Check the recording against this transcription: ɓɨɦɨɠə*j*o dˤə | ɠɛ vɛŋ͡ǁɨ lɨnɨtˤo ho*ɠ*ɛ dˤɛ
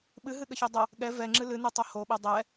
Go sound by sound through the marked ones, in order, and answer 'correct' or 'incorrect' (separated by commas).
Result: incorrect, incorrect